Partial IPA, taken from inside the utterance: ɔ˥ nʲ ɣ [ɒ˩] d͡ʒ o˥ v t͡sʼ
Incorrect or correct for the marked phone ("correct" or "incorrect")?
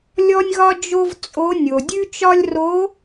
incorrect